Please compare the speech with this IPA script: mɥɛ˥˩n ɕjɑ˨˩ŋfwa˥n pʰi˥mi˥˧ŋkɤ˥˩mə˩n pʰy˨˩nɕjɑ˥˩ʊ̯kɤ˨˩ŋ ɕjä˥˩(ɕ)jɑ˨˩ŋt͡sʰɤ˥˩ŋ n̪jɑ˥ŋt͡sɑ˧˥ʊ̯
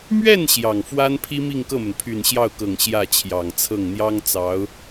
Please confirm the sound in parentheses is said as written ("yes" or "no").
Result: no